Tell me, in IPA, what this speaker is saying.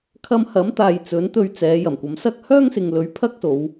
kʰ ɐ˧ m h ɐ˨˥ m t̪ aː˨ j t͡s ɵ˨˥ n t̪ ɵ˧ ɥ t͡s ɛː˨˧ j ɐ˨˩ m kʷ ɐ˨˥ m s ɐ˥ k̚ h œː˥ ŋ s ɪ˨ ŋ l ɵ˨˥ ɥ pʰ ɐ˥ k̚ s o˨˧ w

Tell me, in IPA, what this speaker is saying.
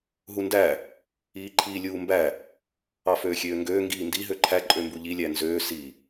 ɦ u n d æ | iː ǃʰ iː lʲ uː m b æ | ɑ f øː xʲ øː ŋ ɡ øː ŋ ɡ iː n d i ɦ ø ǃʰ æ ǃʼ ø m b u ʎ i lʲ æ n z øː s i

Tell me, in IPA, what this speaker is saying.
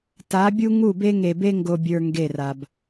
t a˨˦ bʲ u˦ ŋ u˦˨ b e˦ ŋ e˨ b e˦ ŋ ɡ o˨ bʲ ə˞˨ ŋ ɡ e˦˨ r a˨ b

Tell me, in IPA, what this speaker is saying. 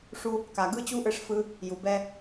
ʂ u˧ | k a˩ ɡ ɯ˥ t͡ɕ u˥ ʔ ɯ˧ ʂ f ɯ˧ | j u˩ b ɛ˥

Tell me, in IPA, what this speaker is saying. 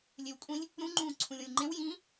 lʲ e w kʷʼ ĩ lʲ | ɾ ũ ŋ͡ǃ ũː ǀʰ ũ lʲ õ lʲ ŋ͡ǃ ẽ w j ĩ

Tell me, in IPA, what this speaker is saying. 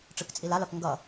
ʈ͡ʂ ɯ k t͡sʼ i l a l ʌ k ŋ ɡ ʌ

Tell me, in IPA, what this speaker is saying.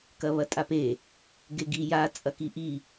k ɐ β ɐ tʼ a p e | ɡ e ɡ i j a t͡sʼ ɐ k i ʔ i

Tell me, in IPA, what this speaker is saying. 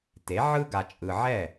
t e˩˥ ʕ ɯ˥ ɡ a˨ t͡ʃʼ ɯ˨ ʕ ɛ˥˩

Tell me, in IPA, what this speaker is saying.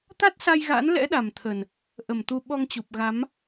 t̪ a˦˥ t̚ s a˧ j ɣ a̰˧˥ n l ɛ̰˧˥ ɗ a˨˩ m t̪ʰ ə˨˩ n | ʔ ə˨˩ m t̪ u˧ ɓ ɔ˧ ŋ t͡ɕ u˨˩ p̚ ɣ a˨˦ m

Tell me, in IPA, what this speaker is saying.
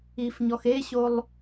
i f ɲ ɔ x e ɕ o lˠ

